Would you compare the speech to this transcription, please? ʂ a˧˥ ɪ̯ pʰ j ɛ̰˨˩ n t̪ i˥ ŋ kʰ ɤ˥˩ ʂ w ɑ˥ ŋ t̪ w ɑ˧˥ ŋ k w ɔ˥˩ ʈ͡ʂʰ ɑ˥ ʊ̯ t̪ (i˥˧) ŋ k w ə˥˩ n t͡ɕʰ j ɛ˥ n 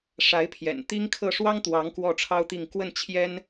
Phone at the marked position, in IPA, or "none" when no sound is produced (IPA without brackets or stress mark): i˥˧